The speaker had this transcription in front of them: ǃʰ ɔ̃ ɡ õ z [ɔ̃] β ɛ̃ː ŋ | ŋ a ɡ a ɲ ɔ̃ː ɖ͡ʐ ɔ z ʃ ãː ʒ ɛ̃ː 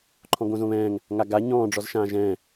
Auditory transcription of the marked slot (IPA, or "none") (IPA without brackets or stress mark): õ